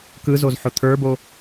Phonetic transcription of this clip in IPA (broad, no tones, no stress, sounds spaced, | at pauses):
k ɯ z o z ħ ʊ t̪ʰ ə˞ b o